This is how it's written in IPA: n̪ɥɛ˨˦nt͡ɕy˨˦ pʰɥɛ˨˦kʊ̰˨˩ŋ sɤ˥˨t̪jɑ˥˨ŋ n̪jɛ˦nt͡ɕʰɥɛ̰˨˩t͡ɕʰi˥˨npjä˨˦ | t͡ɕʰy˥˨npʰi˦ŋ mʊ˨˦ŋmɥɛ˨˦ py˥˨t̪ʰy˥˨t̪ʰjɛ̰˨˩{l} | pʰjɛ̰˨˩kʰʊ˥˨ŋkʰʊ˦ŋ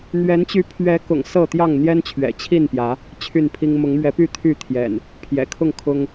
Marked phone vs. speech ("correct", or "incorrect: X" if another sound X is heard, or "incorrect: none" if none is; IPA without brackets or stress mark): incorrect: n